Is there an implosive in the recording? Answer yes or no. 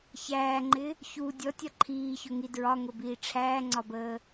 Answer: no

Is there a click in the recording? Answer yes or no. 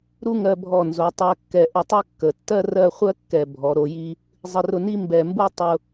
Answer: no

